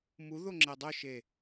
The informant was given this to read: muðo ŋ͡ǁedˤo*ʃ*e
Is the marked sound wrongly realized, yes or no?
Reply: no